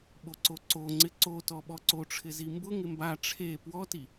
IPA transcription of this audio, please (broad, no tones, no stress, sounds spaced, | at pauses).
ɓ o ǀ o ǀ o ŋ͡ǀ ɪ ǀ o t ɔ ɓ ɔ ǀ o ʈ͡ʂʰ ɪ z i m b ʊ ŋ ɪ m b a ʈ͡ʂʰ e p w ɔ t i